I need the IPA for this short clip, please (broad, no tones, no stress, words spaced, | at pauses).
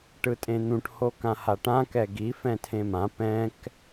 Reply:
ʈɯtʼẽn̪ũʈ hokãhaʈã kɛɡi fɛ̃tʰẽmã pɛ̃k